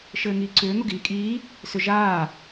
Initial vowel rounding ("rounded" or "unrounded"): unrounded